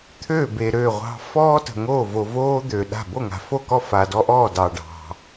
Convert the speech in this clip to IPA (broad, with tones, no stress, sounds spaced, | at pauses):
t̪ʰ ø˥˩ b e˨ ɾ ø˥˩ ʁʷ ɑ̤˦ f ɔː˦ t ə̤˨ ŋ oː˥˩ v o˨ v oː˦ d̪ ø˨ ɗ a̤˥˩ b o˥˩ ŋ a̤˨ f o˥˩ k ɔ˥˩ f a˨ d ɔ˦ ʔ ɔː˥˩ d ɑ˨ ɖ ɑ̤˨